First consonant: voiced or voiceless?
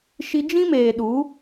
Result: voiceless